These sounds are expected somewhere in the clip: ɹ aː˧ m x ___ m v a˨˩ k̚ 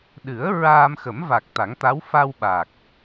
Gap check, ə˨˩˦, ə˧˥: ə˨˩˦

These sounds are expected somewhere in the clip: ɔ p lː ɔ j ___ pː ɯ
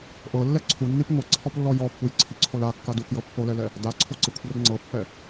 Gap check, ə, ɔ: ɔ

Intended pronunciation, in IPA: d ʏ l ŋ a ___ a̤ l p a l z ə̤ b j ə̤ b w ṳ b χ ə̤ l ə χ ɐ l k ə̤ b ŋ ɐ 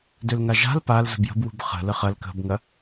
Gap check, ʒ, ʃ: ʒ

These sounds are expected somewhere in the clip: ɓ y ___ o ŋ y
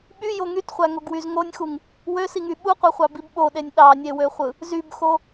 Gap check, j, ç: j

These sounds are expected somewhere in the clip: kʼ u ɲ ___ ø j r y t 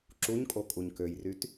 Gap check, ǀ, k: k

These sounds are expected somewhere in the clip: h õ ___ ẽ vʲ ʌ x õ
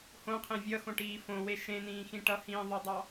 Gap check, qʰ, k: qʰ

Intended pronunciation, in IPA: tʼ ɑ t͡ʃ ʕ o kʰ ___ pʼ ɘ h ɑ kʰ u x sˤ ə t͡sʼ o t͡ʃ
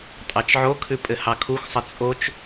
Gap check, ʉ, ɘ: ʉ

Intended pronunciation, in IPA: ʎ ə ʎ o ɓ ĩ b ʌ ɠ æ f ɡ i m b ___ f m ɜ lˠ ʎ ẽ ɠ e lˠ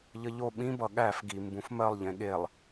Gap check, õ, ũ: ũ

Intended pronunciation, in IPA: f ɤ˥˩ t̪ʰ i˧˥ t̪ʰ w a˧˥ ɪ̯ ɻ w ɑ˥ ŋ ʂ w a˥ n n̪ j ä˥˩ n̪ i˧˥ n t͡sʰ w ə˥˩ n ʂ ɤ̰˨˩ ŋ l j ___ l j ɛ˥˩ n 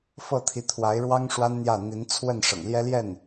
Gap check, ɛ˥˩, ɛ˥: ɛ˥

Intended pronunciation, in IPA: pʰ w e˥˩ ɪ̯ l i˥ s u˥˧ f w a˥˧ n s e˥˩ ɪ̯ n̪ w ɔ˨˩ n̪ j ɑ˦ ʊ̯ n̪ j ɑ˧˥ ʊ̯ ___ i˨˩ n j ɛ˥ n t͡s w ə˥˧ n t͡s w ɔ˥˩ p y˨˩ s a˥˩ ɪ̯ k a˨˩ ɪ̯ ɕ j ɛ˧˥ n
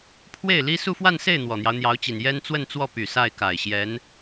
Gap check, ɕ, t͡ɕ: t͡ɕ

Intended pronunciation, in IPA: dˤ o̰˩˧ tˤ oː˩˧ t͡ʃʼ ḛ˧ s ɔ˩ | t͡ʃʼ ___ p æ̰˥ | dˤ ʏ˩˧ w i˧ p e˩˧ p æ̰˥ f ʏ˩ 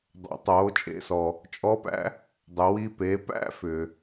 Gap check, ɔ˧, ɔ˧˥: ɔ˧˥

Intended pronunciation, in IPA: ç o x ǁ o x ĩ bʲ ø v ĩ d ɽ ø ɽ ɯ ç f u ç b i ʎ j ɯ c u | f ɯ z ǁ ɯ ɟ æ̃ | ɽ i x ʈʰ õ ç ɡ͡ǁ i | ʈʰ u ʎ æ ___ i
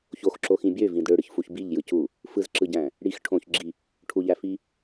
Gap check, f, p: f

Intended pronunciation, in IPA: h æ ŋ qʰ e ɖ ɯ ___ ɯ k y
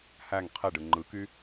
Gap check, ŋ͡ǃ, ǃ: ŋ͡ǃ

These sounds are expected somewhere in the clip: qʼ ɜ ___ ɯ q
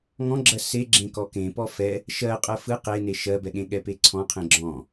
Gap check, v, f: f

